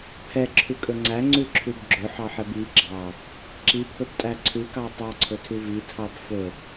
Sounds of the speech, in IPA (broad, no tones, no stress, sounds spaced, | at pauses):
pʰ ɛ ǁʰ ʉ kʼ ɵ ŋ͡ǀ æ ŋ͡ǀ ʉ ǁʰ ʉ b ɡ͡ǁ ɵ ħ ɑ ħ ɛ b i ɡ͡ǁ ɑ | ǁ i pʰ ɵ b tʼ æ ǀʰ ʉ k ɑ tˤ ɑ ǀʰ ɵ tʰ ʉ v i tʰ ɑ b f ɵ